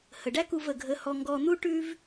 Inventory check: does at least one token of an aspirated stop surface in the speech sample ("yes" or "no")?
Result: no